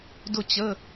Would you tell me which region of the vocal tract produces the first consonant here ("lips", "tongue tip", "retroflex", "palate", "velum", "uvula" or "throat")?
tongue tip